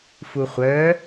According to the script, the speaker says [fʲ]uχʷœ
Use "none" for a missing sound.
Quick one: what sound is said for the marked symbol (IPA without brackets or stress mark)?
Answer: f